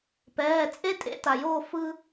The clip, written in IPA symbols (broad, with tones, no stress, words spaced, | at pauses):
pɛː˩˧˩t͡sʼe˥˧ tʼḛ˧˩˧ta˩joː˧˩ fɯ˧